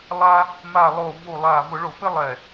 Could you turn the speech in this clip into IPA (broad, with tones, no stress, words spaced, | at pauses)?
lˠa˦ | ma˧˩lˠo˧˩vu˧˩ lˠa˧˩ vʊ˧˩˧ɭo˧˩˧pɪ˦ lˠɛ˧˩